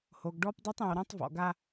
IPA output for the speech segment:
h o˨ ɡ ɖ ɔ˦ p dˤ e˦ tˤ ẽ˨ w ɾ ã˦ tˤ v ɔ̰˨ ɡ a˦

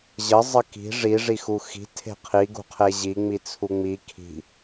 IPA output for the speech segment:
ʑ ə zˤ ə k i̤ ʐ i ʐ i x u x i̤ tʰ e̤ qʰ i ɡ ṳ qʰ e ʑ i ŋ͡m i t͡sʰ u ŋ͡m i kʰ i̤

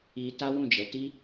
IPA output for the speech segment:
i˧ t a˦ w ũ˦˨ d͡ʒ ɛ˨˦ t i˦

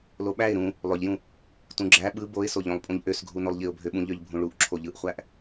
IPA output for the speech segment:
l o ɓ æ ɪ̯ ɾ ũ | lˠ ø ʎ j ũ | t ũ ɡ͡ǁ æ ɓ ɯ b o ɪ̯ s o ʎ õ lˠ pʼ ũ ʎ ʔ ø s ɡʱ u n o lˠ ʎ i ʊ̯ bʱ ø ɓ ũ ʎ ø ʎ bʱ ũ ɭ u ʔ ǁʰ o ʎ ɯ ʔ χʷ æ ʔ

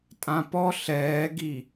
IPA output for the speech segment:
tʼ ã p ɔ ɬ ɛː ɡ i

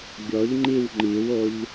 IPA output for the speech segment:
ɡʲ ɔ ʎ ŋ͡ǃ i w ŋ͡ǃ i w o ʎ

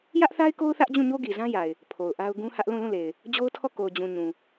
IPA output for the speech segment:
j ä˦ ʔ θ a˦ ɪ̯ k o˦ ʊ̯ θ ä˦ ʔ d͡ʑ ũ˦˨ ɲ o˦ ɡ i˨ z ã˦ j a˨ ɪ̯ | pʰ o˨ ʊ̯ ʔ a˦ ʊ̯ ɡ ũ˦ h ä˦ ʔ l ũ˦˨ l ũ˦˨ l e˨ ɪ̯ | d͡ʑ o˦ ʊ̯ tʰ ɔ˦˨ k o˨ ʊ̯ d͡ʑ ũ˨ ɲ ũ˨

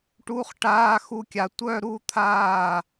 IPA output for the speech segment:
ʈ u˧˥˧ χ ʈ aː˧˥˧ x u˥˩ kʲ a˧ tʷ œ˥˧ ɾ u˥˧ t̪ʰ aː˥˩

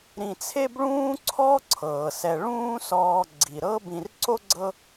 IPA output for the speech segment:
ɾ ĩ˨ t͡sʰ e˥ b ɭ ũː˥ ǀʰ ɔ˥ ǀʰ ɤː˩ s ɛ˨ ɭ ũː˦ s ɔː˨ ɡ͡ǀ i˩ ɾ ɤ˥ b ĩ˨ r ǀ o˥ ɡ͡ǀ ɤ˦

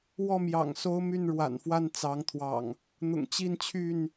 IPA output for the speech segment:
w ɔ˥˨ m j ɑ̰˨˩ ŋ s o˦ ʊ̯ m y˥˨ n ɻ w a̰˨˩ n f w a˥˨ n t͡s ɑ˨˦ ŋ t̪ʰ w ɑ̰˨˩ ŋ | n̪ ʊ̰˨˩ ŋ t͡ɕ i˥˨ n t͡ɕʰ y˥˨ n

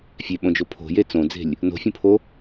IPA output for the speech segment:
fʲ e ɓ õ d͡ʒ o pʰ o̤ j e t͡s õ d͡z e̤ lʲ | n o̤ fʲ õ pʰ o

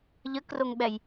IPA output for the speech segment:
ʎ ə k r o ŋ ɓ ɛ j

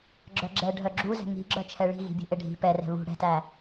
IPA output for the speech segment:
ɡ͡ǁ œ ɡ͡ǁ ɛ ɖʱ œ ɡ͡ǁ u z ɛ̤ ŋ i̤ ɡ͡ǁ œ t͡ʃʰ ɛ ɭ i̤ ɣ i̤ bʲ ṳ ʔ e ɖʱ i̤ p ɛ r ɛ̤ β ṳ ɽ ɛ̤ t æ

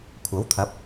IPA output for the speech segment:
kʷʰ ɐ˨˥ w t̪ʰ ɐ˨˥ p̚

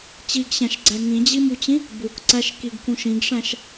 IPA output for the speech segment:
t͡ɕ i ɡ ɕ æ̃ ʃ ɡ͡ǀ æ ŋ ĩ d͡ʑ i m u t͡ɕ ĩ | b u k ǀ æ ʃ k i ɡ k ũ ʃ ĩ ɡ ʂ æ̃ ʃ

